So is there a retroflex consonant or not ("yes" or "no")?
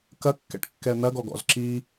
yes